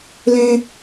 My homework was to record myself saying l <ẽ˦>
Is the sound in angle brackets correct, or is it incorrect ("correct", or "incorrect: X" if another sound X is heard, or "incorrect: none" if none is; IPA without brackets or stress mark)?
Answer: correct